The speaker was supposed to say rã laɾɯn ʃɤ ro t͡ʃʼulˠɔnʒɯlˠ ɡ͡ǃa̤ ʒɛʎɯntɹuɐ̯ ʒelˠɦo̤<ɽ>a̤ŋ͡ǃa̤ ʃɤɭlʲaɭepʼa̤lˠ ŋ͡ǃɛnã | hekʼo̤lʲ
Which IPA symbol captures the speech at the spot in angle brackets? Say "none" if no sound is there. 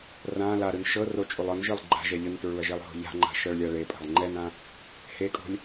ʎ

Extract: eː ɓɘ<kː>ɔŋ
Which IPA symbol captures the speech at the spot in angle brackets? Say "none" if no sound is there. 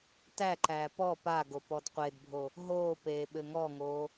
ŋ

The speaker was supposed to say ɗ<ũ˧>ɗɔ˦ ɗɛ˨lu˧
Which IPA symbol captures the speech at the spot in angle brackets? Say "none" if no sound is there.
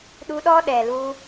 u˧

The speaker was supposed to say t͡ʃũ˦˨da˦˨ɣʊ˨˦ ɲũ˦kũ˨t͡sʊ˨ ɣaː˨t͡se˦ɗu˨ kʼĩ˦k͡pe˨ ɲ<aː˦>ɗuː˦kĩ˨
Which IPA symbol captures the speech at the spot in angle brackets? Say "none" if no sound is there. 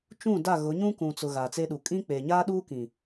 aː˦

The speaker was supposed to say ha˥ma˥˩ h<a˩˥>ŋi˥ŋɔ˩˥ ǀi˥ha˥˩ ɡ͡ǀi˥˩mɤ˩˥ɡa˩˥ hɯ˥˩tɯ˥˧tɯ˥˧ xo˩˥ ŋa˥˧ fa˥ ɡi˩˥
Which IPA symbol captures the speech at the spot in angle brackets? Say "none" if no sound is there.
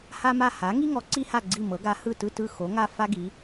a˩˥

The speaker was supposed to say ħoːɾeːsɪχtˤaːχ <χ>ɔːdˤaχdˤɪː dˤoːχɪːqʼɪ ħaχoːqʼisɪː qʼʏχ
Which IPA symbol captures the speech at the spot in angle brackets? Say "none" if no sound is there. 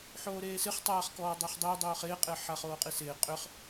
k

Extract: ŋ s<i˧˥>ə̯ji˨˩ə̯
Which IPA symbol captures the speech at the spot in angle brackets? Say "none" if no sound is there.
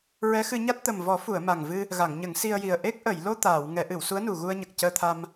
i˧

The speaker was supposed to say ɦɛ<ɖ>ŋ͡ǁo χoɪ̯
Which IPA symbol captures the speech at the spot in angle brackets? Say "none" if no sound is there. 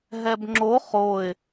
b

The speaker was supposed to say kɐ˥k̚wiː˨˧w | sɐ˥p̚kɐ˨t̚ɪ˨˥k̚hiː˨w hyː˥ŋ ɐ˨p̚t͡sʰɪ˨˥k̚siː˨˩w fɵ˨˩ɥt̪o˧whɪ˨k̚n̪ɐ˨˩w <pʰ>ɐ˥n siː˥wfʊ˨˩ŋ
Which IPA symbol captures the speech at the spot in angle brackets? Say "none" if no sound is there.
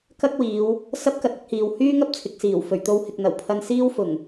pʰ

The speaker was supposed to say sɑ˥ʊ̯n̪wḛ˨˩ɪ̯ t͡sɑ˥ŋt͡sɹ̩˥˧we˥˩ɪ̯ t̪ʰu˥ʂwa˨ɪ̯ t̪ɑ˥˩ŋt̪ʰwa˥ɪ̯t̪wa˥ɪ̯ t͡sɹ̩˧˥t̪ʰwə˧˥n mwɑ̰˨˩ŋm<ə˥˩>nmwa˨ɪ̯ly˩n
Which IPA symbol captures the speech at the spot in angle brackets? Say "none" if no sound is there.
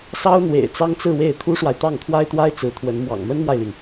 ə˥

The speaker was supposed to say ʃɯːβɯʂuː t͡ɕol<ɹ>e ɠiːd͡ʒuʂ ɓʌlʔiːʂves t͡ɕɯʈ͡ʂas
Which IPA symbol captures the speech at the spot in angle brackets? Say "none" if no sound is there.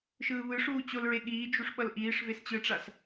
ɹ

